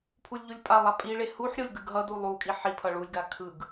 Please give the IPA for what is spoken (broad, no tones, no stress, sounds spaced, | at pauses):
pʰ u lʲ ʎ u lʲ pʼ a lˠ a pʼ i ɭ e h u ħ ɾʲ o lʲ ɡ ɯ ɡ ɦ ʌ d u lˠ u kʼ i ħ i pʰ ʌ ɭ u lʲ ɡ a kʰ ɯ ɡ